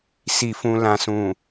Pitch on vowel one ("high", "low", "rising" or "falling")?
low